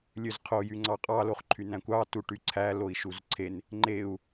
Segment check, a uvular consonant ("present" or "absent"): present